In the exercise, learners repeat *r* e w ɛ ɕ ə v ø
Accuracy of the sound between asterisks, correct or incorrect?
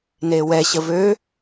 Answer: incorrect